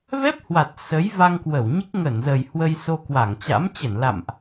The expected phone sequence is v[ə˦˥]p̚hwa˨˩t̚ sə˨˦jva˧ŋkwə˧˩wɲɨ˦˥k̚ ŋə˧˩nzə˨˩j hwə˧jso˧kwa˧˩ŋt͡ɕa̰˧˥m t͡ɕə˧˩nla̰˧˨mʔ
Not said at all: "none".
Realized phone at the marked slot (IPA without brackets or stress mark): ɛ˦˥